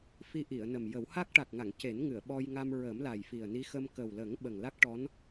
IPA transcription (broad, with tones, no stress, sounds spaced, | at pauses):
f i˧ ʔ i˨˩˨ ə̯ n ə˨˩ m j ə˨˩˦ w h a˦˥ k̚ ʈ a˨˩ k̚ ŋ a˨˩˨ ŋ c e˨˩˦ n ŋ ɨ˨˩˨ ə̯ ɓ ɔ˧ j ŋ a˧ m ɹ ə˨˩˦ m l a˨˩ j f i˨˩ ə̯ n i˧˥ x ə˧ m k ə˨˩ w l ə˨˩˦ ŋ ɓ ə˨˩ ŋ l a˦˥ k̚ ʈ ɔ˧˥ n